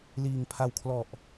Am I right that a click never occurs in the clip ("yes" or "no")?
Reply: yes